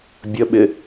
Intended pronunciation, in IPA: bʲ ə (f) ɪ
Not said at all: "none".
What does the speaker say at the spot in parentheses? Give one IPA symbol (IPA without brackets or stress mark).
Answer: ɓ